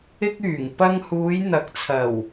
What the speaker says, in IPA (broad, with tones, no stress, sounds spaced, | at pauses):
ɪ˥ k̚ yː˨˩ ŋ p ɐ˧ ŋ h uː˨˧ j n̪ ɐ˨˥ k̚ t͡sʰ ɐ˨˩ w